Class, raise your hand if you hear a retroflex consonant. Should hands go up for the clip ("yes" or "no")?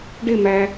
yes